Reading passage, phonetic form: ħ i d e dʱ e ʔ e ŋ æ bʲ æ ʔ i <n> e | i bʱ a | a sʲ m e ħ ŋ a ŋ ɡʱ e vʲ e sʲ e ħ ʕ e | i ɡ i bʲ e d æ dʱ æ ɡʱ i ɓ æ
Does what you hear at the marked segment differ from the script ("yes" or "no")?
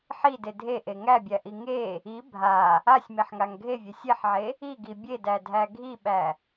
yes